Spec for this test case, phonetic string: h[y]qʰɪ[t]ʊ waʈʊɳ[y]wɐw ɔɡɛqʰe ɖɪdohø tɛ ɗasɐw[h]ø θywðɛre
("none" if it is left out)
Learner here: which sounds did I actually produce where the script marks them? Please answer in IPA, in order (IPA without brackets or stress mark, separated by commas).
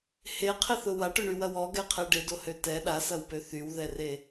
e, θ, y, p